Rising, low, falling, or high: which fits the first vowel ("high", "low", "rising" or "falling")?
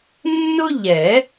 high